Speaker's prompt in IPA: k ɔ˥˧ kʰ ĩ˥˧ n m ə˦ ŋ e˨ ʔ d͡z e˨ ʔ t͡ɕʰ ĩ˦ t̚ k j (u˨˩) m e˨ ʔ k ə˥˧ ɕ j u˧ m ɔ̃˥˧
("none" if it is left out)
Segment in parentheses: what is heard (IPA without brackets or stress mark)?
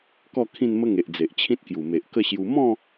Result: u˨˩